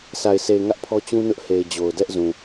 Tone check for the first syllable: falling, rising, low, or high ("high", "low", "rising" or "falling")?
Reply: low